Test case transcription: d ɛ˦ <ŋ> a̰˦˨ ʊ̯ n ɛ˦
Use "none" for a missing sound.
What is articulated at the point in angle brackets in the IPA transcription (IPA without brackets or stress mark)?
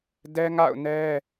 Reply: ŋ